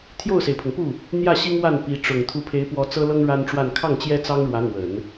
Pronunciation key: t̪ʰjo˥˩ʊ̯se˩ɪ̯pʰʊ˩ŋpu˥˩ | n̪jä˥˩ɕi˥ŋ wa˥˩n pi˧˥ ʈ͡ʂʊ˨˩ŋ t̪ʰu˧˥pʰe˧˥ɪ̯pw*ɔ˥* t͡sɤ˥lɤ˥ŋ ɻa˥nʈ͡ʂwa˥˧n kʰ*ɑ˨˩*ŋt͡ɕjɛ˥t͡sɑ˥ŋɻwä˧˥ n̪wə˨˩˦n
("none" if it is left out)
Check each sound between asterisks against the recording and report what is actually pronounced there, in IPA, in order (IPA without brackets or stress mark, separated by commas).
ɔ˧˥, ɑ˥˩